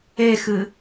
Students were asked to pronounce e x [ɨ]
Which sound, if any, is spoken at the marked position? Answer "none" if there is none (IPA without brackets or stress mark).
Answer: ɨ